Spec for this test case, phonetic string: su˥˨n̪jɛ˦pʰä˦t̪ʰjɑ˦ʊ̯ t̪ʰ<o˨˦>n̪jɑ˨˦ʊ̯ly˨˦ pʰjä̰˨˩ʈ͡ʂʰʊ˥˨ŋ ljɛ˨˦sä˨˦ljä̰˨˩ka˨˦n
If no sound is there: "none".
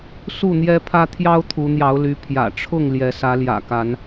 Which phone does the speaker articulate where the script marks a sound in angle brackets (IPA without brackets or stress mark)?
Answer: u˨˦